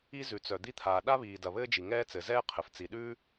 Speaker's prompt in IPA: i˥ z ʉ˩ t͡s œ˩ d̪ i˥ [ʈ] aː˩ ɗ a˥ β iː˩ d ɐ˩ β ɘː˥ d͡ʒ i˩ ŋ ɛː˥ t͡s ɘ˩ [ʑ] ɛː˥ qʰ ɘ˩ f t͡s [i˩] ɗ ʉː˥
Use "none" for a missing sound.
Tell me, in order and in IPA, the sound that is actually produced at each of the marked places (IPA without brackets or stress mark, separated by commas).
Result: t̪ʰ, z, i˩